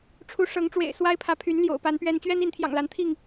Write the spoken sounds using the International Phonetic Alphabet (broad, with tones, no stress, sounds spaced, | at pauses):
ʈ͡ʂʰ u˨˦ ʂ ɤ˨˦ ŋ ʈ͡ʂ w ḛ˨˩ ɪ̯ s w a˦ ɪ̯ pʰ ä˨˦ pʰ y˨˦ n l j o̰˨˩ ʊ̯ p a˨˦ n p ɥ ɛ˦ n t͡ɕ ɥ ɛ˦ n i˨˦ n t̪ʰ j ɑ̰˨˩ ŋ l a˨˦ n t̪ʰ i˥˨ ŋ